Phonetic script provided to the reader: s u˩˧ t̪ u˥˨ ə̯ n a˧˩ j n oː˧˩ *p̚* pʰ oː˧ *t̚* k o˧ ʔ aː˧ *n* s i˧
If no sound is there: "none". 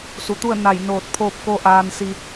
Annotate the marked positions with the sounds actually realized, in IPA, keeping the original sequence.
t̚, p̚, n

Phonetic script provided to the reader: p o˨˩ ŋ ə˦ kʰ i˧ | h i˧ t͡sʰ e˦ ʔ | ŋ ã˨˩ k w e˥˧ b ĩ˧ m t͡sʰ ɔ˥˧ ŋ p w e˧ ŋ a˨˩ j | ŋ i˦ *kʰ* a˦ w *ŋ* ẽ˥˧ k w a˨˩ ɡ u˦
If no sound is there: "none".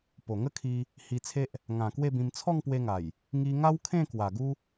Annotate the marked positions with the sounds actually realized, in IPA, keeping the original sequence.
ŋ, kʰ

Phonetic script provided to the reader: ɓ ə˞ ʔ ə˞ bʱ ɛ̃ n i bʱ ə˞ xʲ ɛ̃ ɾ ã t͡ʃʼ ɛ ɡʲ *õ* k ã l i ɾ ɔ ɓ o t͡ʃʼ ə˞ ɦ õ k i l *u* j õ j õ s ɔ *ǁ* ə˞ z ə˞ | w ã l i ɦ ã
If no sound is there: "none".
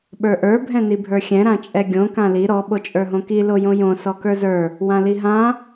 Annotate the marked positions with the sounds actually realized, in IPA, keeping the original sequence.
õ, o, k

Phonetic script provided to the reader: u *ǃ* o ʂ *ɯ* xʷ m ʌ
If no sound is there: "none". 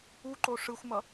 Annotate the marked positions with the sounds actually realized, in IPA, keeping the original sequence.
ǃ, ɯ

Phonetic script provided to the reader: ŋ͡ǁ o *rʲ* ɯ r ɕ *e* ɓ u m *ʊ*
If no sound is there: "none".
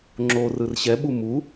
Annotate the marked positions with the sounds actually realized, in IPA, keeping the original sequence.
r, ɛ, u

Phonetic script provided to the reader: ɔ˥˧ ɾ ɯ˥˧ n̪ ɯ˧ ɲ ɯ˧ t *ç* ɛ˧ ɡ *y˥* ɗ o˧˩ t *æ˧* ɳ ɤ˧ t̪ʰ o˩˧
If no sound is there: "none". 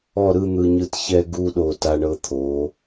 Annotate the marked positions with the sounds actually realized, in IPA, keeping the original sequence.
ç, u˥, a˧

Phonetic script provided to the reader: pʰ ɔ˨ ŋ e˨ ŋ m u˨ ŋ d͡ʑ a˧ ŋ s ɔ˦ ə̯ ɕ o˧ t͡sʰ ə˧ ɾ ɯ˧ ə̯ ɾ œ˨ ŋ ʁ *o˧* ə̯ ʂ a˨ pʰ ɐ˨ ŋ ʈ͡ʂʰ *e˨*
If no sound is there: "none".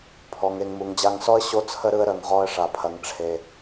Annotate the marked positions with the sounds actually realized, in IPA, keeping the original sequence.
ɔ˧, e˨

